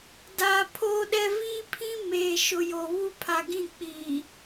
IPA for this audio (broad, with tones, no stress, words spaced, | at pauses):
da˨ pʰoː˦ɗɛ˦ viː˦pʰĩ˦ meː˨ʃʊ˨jo˨ βu˦pʰa˨ɡĩ˦˨k͡piː˨